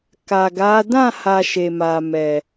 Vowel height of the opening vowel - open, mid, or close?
open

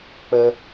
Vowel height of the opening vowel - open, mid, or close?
mid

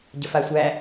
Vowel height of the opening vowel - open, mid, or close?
mid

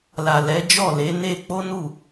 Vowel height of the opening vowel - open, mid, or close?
open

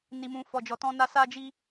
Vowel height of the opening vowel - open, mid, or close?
close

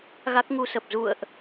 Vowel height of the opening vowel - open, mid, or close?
open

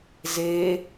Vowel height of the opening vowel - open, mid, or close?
mid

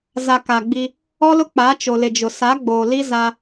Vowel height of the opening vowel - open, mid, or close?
open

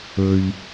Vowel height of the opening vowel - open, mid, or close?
mid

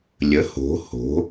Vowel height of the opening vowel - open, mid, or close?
mid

